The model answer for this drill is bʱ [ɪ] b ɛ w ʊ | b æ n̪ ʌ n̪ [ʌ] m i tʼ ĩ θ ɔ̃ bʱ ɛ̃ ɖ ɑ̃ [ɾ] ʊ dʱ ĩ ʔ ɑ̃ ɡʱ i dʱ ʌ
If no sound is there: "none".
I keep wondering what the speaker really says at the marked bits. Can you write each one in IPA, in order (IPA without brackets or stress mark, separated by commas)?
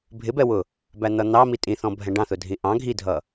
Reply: ɪ, ɑ, θ